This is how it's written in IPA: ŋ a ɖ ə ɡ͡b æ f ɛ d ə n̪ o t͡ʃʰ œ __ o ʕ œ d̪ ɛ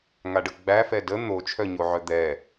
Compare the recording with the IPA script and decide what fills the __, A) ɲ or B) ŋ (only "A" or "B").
A